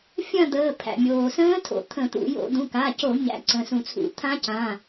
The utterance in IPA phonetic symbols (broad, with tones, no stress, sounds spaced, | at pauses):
fʲ ɐ̃˥˧ d̪ əː˩˧˩ pʰ æ̰˩ mʲ oː˩ s ə̃ː˦˥ tʰ o̰˩ t̪ʰ ə̃˧˩˧ t̪ ṵ˧˩˧ j o̰˧˩˧ d̪ ũ˩˧˩ k a˩˧˩ c o˧˩˧ ɲ æ̰˨˦ ǀ ə̃˩˧˩ s ũ˧˩˧ t͡sʰ ṵ˧˩˧ t̪ʰ ã˦˥ c ã˩˧˩